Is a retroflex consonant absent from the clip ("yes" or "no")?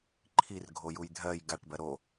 no